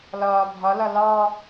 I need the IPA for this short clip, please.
l ɒː bʱ ɒ l ɒ l ɑ

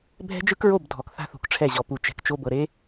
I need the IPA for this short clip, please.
bʱ ɛ̤˦ d͡ʒ ɯ˦ k ɹ o˦˨ b dʱ ɔ˨ k θ a̤˦ θ ṳ˨ k ʈ͡ʂʰ ɛ˦˨ ʑ ɔ˨ p u˨ t͡ʃ ɛ̤˨ k t͡ʃ o˦ b ɤ˨ ɾ e˦

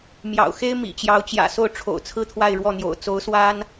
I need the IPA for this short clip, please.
m j ɑ̰˨˩ ʊ̯ x e˥ ɪ̯ m ḭ˨˩ t͡ɕ j ɑ˧˥ ʊ̯ t͡ɕ j ä̰˨˩ s o˥˩ ʊ̯ ʈ͡ʂʰ o̰˨˩ ʊ̯ t͡sʰ ɹ̩˥˧ t̪ʰ w a˥˧ ɪ̯ ɻ w ɔ˥˩ n̪ j o̰˨˩ ʊ̯ t͡s o˧˥ ʊ̯ s w a˥ n

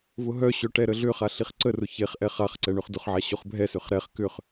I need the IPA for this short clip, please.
v ʊ ɦ œ ɕ œ ʈ ɛ ɾ ə ɮ ʏ χ a ɬ i χ ǀ ə r ʊ ç e χ ʔ ɛ χ a χ ǀ ɛ ɳ ø χ d ʊ χ ʕ a ɕ ʊ χ bʱ ɛ s ʏ χ ɾ ɛ χ k ʏ χ

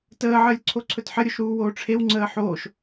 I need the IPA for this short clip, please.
t əː ʕ əː lʲ ǀʰ o ǀʰ ɵ t ħ ə ɾʲ o ʃ ɾ uː w oː ʈ͡ʂʰ e w ŋ͡ǀ əː ħ oː ʃ

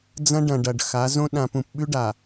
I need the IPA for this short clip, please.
d͡z ɐ̃˦ ɖ ɐ̃˨ ɖ ɐ˨ ɖ x a˨˦ z õ˦ ɗ ã˨ p ũ˨ p ɓ ʉ˦ ɖ a˨

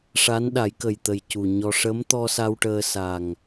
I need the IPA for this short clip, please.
ʂ a˧˥ n ɗ a˨˩˦ j k ə˨˩ j t̪ ə˨˩ j c u˨˩ ɲ ɔ˧ ʂ ə˧˥ m t̪ ɔ˧ s a˧ w ʈ əː˧ s a˨˩ ŋ

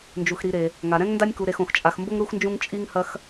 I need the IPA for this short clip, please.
n d͡ʒ u˩ x ɾ i˨ ɾ e˩ | ŋ a˩ ɾ ɛ̃˥ ŋ n d a˦ nʲ k u˨ ɾ e˨ x õ˩ x t͡ʃʼ a˨ x m b o˦ ŋ ɾ u˦ x n d͡ʒ ũ˦ ŋ t͡ʃʼ i˦ ŋ h ɐ˦ x

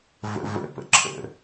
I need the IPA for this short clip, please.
v ə̰ v ə̰ p ə̰ ǁʰ ə̰

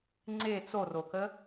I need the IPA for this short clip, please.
ŋ͡ǀ e t͡s o r o k ə

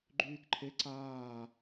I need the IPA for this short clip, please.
ɡ͡ǃ yː k ǃʰ e ǀ aː

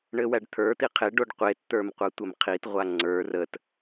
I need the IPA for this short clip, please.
ɳ ɘ w æ ɖ t̪ʰ ə˞ t̪ i qʰ e ɖ o ɖ qʷ e t t̪ ə˞ m qʷ a tʷ ɘ m qʰ i t ʁʷ a ŋ͡ǀ ə˞ r ə t

